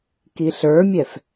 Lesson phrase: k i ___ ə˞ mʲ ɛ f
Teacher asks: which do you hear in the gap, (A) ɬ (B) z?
A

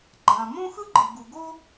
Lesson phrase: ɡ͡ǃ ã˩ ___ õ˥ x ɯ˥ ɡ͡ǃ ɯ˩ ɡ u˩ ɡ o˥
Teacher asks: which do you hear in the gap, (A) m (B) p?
A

